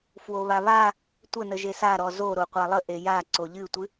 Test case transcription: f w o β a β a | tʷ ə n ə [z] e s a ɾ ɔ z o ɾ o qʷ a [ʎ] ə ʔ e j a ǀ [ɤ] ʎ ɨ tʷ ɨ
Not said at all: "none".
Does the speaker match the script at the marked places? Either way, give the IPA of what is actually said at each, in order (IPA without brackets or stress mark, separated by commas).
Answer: ʒ, lˠ, o